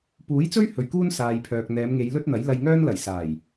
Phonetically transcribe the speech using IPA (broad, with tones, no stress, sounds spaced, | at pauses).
p uː˨˥ j t͡s ɵ˥ ɥ h ɵ˨ ɥ k uː˥ n s aː˨ j pʰ œː˨ k̚ n̪ ɛː˨˧ m ŋ e˨˧ j l ɵ˥ t̚ n̪ ɐ˨˥ j l ɐ˧ j ŋ œː˥ n l ɐ˨˩ j s aː˨˩ j